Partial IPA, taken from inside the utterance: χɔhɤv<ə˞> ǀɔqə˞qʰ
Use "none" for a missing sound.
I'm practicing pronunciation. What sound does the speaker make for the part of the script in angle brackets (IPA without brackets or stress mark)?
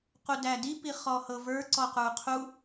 ə˞